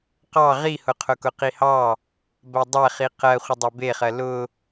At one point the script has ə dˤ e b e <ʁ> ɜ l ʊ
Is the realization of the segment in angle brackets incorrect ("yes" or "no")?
yes